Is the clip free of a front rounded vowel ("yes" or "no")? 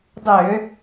no